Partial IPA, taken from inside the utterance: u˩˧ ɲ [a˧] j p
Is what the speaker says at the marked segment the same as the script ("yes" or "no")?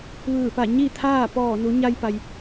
yes